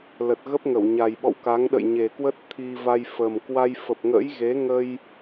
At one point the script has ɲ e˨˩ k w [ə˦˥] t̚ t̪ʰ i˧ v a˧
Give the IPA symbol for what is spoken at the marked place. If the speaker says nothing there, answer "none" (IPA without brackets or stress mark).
ə˦˥